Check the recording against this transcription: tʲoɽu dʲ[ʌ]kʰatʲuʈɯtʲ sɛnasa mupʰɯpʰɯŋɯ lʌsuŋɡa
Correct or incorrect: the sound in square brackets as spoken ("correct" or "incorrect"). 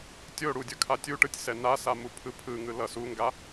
correct